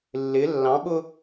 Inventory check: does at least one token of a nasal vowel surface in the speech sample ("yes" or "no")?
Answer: yes